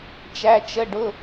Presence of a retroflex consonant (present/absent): present